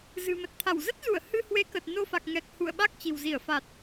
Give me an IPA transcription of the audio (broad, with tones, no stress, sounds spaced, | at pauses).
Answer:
z ɨ̤˨˩ m ə˨˩ t̚ t̪ʰ a˧˩ w z ə˦˥ t̚ z u˧˩ ə̯ h ɨ˧ h w e˨˦ k ə˨˩ t̚ n o˧ f a˨˩ k̚ ŋ ɛ˨˩ k̚ h ṵ˧˨ ə̯ ɓ a˦˥ k̚ t͡ɕ i̤˨˩ w z i˧˩ ə̯ f a˨˩ t̚